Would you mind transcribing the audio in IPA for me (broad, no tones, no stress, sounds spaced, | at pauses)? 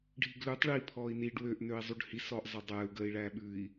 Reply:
ɖʱ i ɡ l ʉ tˤ ɭ i pʰ ɔː i̯ n i ɖ w ø ʔ n ø i̯ zˤ u ɖ h i s ɔː ʔ zˤ ʌ dˤ ɛː u̯ ɡ əː i̯ ɭ æː ɓ ʉ i̯